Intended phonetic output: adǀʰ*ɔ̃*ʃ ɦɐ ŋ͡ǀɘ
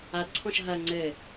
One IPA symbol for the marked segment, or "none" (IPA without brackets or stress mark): ɔ̃